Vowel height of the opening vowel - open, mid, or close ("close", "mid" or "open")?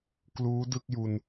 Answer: close